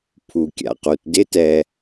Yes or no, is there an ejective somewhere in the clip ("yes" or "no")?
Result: no